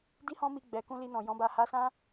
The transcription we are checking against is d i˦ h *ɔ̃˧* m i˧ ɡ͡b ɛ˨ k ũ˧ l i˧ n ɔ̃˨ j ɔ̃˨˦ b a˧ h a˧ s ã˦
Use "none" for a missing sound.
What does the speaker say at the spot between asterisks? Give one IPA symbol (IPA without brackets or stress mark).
ɔ̃˦